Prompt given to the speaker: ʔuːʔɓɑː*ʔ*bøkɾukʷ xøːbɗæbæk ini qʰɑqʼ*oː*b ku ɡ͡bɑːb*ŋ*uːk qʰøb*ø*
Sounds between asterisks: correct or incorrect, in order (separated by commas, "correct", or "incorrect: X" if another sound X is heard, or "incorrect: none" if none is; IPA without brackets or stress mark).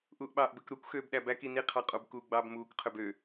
correct, incorrect: o, incorrect: m, correct